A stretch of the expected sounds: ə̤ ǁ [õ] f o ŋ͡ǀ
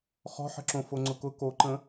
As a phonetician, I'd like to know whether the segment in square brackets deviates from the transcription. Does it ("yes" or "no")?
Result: no